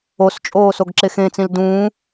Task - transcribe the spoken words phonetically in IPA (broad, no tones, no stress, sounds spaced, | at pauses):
o s t͡ʃʼ oː s o ɡ ǁ e x ẽː t͡s ĩ l d ũ